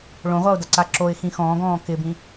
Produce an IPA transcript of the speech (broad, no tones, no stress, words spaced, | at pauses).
ɭõʁʷaʊ̯daǀa ǁoɪ̯xĩ xɔ̃ːɡɔ̃ː kɪbĩ